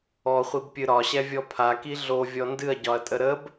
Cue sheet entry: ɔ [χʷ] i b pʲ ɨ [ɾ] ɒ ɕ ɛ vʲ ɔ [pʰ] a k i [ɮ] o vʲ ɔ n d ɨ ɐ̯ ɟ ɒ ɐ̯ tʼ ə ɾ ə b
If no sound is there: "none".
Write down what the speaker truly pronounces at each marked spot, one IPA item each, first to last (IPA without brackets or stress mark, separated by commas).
χʷ, ɾ, pʰ, ɮ